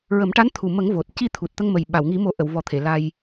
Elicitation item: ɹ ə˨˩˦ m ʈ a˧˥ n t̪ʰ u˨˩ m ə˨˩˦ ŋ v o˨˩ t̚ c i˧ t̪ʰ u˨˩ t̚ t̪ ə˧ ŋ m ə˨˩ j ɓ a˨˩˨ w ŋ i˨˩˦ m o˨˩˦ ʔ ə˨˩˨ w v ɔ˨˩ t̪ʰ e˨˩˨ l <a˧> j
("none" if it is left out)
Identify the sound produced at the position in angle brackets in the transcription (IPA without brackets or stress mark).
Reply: a˧